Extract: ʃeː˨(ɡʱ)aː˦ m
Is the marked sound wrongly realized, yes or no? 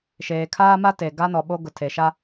yes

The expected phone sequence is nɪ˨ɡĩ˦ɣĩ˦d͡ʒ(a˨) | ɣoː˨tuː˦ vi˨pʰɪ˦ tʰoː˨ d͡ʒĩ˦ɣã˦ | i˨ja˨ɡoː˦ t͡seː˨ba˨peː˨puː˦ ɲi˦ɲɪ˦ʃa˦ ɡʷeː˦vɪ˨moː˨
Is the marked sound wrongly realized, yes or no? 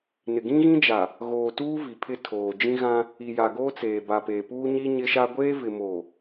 no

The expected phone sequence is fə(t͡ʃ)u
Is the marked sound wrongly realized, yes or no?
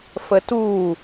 yes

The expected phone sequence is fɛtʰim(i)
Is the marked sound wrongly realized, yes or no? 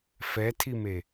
yes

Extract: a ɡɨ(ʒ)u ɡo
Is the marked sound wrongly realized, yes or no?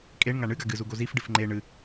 yes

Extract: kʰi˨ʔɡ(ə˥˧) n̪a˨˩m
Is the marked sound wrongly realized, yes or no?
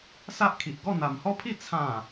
yes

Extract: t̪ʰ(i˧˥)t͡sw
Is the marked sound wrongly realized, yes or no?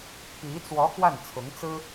no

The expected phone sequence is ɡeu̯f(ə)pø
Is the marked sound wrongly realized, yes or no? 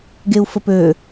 no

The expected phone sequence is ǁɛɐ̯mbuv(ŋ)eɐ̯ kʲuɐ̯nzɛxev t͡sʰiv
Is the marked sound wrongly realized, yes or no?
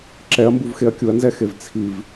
yes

